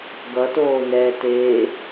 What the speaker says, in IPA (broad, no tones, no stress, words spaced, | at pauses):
ɡʌtoːnɛːteː